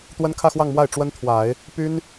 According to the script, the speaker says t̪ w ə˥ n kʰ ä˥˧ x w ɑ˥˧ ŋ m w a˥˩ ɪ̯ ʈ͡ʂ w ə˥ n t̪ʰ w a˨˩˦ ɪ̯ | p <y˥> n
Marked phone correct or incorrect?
correct